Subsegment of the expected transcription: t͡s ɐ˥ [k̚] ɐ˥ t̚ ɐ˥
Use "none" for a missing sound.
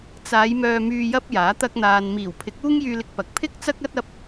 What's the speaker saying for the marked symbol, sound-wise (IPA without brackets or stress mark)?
k̚